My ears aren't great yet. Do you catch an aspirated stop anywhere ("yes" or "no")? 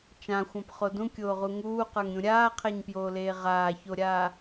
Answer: yes